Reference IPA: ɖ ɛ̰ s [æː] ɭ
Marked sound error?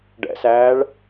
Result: no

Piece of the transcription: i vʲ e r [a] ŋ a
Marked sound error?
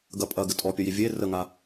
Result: yes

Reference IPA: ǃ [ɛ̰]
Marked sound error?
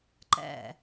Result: no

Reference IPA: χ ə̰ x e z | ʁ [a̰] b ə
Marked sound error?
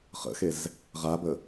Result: yes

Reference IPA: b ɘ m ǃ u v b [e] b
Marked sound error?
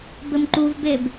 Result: no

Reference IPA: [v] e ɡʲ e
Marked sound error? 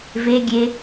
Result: no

